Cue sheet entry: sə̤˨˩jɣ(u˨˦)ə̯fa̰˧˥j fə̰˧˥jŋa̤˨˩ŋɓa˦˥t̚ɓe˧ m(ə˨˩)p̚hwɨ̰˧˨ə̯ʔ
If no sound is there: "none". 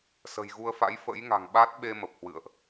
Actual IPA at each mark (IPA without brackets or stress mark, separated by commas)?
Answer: u˧, ə˨˩